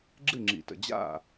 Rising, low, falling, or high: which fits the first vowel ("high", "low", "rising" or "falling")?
falling